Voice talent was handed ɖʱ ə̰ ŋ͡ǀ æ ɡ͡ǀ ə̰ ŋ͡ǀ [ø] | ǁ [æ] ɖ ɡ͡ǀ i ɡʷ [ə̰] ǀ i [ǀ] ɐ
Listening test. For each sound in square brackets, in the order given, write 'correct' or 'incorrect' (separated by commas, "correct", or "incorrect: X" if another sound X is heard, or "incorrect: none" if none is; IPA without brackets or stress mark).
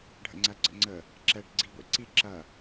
incorrect: ə, incorrect: ɛ, incorrect: ɛ̰, incorrect: ǁ